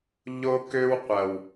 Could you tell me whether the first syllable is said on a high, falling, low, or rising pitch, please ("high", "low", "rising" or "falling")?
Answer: high